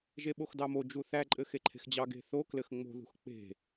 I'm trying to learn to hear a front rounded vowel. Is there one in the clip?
no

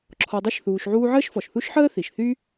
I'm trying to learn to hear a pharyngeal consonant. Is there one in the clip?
yes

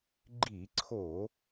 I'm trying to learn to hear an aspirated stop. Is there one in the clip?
yes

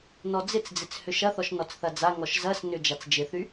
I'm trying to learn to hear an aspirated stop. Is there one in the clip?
no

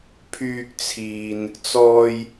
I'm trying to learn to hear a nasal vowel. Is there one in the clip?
no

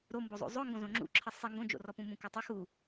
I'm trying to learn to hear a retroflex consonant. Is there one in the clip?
no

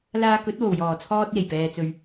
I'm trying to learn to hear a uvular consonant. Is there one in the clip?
no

